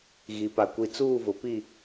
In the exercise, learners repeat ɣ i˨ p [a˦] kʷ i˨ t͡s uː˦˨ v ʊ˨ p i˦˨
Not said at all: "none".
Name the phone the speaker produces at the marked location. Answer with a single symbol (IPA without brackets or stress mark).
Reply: a˨